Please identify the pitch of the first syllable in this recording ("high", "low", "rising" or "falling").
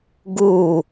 falling